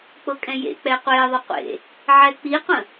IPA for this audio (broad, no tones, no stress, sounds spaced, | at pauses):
k͡p ɤ kʼ ɛ̃ j ḛ k͡p ɛ qʷ e ðˤ ə qʷ ḛ | ʕ ɛ k͡p i qʷ ə̃